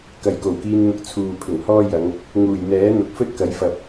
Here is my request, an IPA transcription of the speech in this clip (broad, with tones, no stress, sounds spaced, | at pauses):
k ɐ˨ j k o˨˩ w k iː˧ n n̪ ʊ˧ k̚ t͡sʰ uː˨ pʰ ɪ˨˩ ŋ h ɔː˥ j ɐ˨˧ ŋ | ŋ uː˨˩ j n̪ ɛː˨˥ n̪ ʊ˨ k̚ f ɵ˥ t̚ k ɐ˨˥ j f ɐ˨ p̚